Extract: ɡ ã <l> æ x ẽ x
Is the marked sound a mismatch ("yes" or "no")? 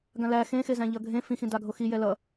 no